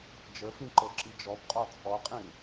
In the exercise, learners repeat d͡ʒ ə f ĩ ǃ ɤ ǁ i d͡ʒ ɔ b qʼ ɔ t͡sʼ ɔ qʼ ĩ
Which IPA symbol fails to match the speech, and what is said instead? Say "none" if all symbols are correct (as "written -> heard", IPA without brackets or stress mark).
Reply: none